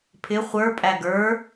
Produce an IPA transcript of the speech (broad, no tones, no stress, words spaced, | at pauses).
pʰɪ χʷə˞pʼæ ɡə˞